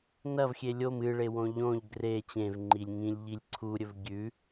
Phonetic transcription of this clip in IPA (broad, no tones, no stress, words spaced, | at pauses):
nɐvxʲe lʲom ɨɭewõ ʎõʎ ɡre t͡ɕẽvŋ͡ǃilʲ ŋĩlʲʎilʲ ǀʰuɾʲɵv ɡʲʉ